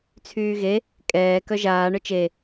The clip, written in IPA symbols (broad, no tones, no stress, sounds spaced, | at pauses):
t͡sʰ yː ɣ e | kʼ ɛː k œ ʒ aː ɳ œ t͡ʃ e